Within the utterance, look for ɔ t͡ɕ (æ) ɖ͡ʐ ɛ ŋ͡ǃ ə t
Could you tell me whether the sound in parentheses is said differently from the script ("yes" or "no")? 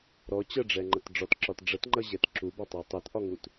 yes